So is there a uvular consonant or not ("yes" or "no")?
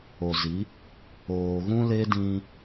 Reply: no